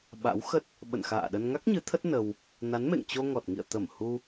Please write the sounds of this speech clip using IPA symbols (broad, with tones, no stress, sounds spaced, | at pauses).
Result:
ɓ a̰˧˥ w x ə˦˥ t̚ | ɓ ə̰˧˨ n x a̰ː˧˨ ɗ ə˧ n ŋ a˦˥ k̚ ɲ ɨ˨˦ t̪ʰ ə˦˥ t̚ n ə˧ w | n a˨˦ n m ḛ˧˨ ŋ t͡ɕ o˧ ŋ ɔ˨˩ t̚ ŋ ḭ˧˨ ə̯ t̪ ə˧˩ m h u˧